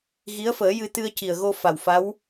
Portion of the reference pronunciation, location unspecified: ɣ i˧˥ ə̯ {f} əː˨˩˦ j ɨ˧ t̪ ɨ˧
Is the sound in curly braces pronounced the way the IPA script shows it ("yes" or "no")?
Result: yes